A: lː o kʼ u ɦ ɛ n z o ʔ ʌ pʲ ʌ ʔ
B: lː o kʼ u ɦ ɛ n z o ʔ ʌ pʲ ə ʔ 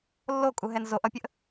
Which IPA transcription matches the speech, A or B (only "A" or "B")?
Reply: B